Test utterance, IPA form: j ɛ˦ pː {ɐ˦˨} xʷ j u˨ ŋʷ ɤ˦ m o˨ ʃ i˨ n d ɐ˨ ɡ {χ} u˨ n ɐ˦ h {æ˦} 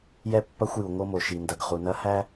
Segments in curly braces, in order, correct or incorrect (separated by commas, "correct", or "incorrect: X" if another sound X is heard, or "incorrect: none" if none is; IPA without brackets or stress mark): incorrect: ɐ˦, correct, correct